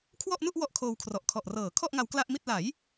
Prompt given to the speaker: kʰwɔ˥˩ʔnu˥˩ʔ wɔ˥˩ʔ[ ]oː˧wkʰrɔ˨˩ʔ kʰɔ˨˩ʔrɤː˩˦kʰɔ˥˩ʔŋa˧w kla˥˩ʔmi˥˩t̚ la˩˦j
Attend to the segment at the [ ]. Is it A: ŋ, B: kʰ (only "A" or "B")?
B